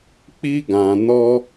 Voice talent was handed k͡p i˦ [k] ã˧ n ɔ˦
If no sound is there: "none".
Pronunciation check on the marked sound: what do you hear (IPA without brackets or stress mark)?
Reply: ɡ